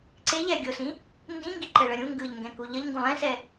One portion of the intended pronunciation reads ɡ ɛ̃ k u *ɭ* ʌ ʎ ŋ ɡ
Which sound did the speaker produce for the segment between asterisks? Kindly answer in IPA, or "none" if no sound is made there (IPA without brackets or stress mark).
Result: ʎ